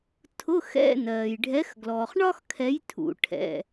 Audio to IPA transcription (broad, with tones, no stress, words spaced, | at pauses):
tʰʊ˧˥˧xɛ̰˧˥˧ nɜː˩jɖʱɛ˨˦x ɡlɔː˩χ ɳɒ˥xkʰɛ˨˦j tʰṵ˩ʈʰɛ̰˩˧˩